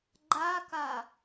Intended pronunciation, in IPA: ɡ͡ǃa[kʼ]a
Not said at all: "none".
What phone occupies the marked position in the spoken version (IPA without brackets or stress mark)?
k